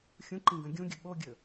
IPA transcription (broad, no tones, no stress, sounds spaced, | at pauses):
xʲ ũ ǃ ĩ ɡ ɐ̃ ɡʲ ũ ɡʲ ɵ ɓ o ɡʲ ɵ